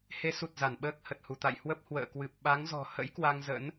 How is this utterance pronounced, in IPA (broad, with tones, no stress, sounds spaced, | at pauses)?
h e˨˦ s u˨˩ t̚ z a˧˩ n ɓ əː˦˥ k̚ h ə˨˩ t̚ h u˧˩ t̪ a̰˧˨ j h w ə˦˥ p̚ h w ə̰ː˧˨ k w ɨ˨˩ p̚ ɓ a˨˦ ŋ z ɔ̤˨˩ h ə̰˧˥ j k w a˧ ŋ z ə̰˧˥ n